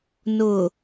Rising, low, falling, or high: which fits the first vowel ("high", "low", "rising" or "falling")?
low